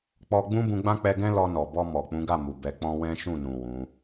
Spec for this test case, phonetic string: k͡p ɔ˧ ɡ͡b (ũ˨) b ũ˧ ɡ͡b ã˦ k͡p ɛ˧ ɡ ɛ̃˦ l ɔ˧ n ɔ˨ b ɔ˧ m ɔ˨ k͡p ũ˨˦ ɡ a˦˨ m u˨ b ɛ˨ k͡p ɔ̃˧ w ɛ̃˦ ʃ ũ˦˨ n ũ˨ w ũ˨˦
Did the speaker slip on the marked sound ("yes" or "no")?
yes